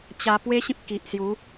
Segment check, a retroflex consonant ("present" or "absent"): absent